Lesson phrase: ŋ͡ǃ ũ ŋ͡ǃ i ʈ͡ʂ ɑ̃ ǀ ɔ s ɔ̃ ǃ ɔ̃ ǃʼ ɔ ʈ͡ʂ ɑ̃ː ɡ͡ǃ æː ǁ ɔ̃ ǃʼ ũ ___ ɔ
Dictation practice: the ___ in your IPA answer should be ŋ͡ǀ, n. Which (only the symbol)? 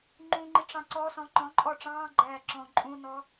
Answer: n